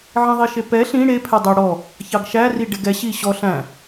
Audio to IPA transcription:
ʕ ĩ ðˤ i ʃ e p ɛ ɬ ĩ ɽ e pʰ ɛ dˤ ɛ ɽ ɔ | ç ɑ ɡ ʃ æ r i ɖ e ɡ ɛ ɕ i ɕ ɔ ɬ æ̃

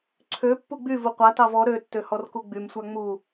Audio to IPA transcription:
ǀʰ ø pː u ɡ͡b y v u qʷ a t ɑ v ɔ ɾ ø tː ø h ɔ r k u ɡ͡b y m sʷ a ŋ͡m u

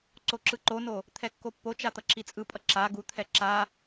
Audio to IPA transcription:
ǀ o ǁ ɯ ǃ o n o | t̪ʰ ɛ kː o pː o t͡ʃ a t̪ ʌ ǁ i t͡sʼ ɯ pʼ ʌ ǁ a ɡ u t̪ʰ ɛ ǁ a

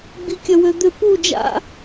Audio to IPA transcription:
ɡ͡b i kʲ œ w ø d̪ ø p u d͡ʒ a̰

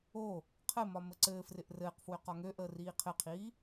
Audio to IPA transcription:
o | qʰ ɘ m ɒ m ə ǀ ɘː f r ɪ ʔ r ɘː q f w ø q ɒ ŋ ø ʔ əː r iː qʰ ɘ qʰ iː

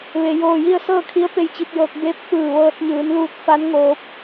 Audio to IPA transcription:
ʋ e˩ j oː˧˩ j i˥˨ ə̯ s ɤː˥˨ kʰ i˧˥ ə̯ p e˧ j t͡ɕ i˧ p̚ j ɤː˧ k̚ b eː˧˥ p̚ f ɯː˧˩ ʋ ɤː˧ t̚ ɲ ɯː˩˧ n l uː˧ t̚ f a˧˥ n ŋ oː˧˥ p̚

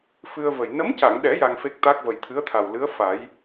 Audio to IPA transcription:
f ɨ˧ ə̯ v ə˨˩ j n ə˧˥ m c a˨˩˨ ŋ ɗ ɛ˨˩˦ j a˧ ŋ f e˦˥ k̚ t̪ a˦˥ k̚ v ə˨˩ j t̪ʰ ɨ˧˥ ə̯ t̪ʰ a˨˩ w l ɨ˧˥ ə̯ f a˨˩˦ j

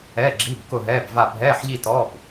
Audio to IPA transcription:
ɛː˧˥˧ ɡ͡ǁ i˧˥˧ b k ʊ˥˧ ɦ ɛː˧˥˧ b v a˥˧ bʱ ɛː˧˥˧ ħ ʎ i˥˧ t ɔ˧˥˧ b

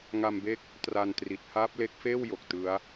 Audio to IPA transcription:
ŋ a˧ m b e˦˥ k̚ | t r a˧ n t r i˨˩ t̚ h aː˦˥ p̚ l e˦˥ k̚ f eː˥˩ w j o˨˩ k̚ t ɯ˦˥ a̯

